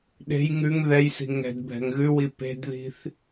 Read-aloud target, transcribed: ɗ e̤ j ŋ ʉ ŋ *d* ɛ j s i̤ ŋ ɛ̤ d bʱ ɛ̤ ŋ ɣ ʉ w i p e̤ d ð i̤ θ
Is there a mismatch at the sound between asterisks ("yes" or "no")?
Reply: yes